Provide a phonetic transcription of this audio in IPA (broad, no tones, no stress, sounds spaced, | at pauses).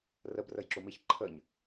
r ə b r ə j ǁ u m i ç ǃʰ ə ɲ